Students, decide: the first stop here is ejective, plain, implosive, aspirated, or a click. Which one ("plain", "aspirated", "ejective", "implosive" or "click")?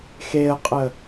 ejective